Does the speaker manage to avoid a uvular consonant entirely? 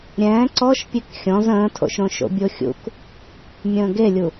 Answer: yes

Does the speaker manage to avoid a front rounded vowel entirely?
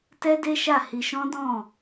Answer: yes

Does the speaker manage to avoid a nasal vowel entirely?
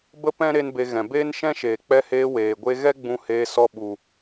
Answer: no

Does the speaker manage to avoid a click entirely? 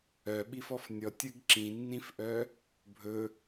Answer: no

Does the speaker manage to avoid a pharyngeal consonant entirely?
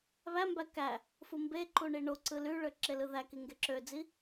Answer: yes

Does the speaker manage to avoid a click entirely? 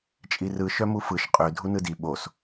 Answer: yes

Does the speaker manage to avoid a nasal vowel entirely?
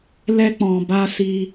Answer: no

